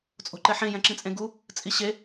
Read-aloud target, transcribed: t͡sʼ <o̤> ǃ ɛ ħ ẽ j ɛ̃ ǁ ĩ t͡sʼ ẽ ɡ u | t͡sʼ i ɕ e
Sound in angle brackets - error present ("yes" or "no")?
no